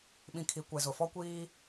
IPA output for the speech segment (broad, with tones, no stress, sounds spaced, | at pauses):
ɓ ĩ˨ kʰ i˨˦ kʷ ɛ˨ z ʊ˨ f ɔ˦ kʷ iː˦